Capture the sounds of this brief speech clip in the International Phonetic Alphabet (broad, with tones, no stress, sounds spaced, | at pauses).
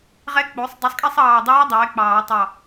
ʁ ɛ˧˥ k͡p o˩˥ sˤ dˤ i˩˥ sˤ kʼ ɛ˥˨ sˤ ɑː˧˩ dˤ ɛː˧˥ dˤ ɛː˩˥ k͡p ɑː˨˩˦ tˤ ɑ˧˩